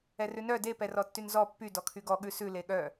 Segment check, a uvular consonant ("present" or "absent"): absent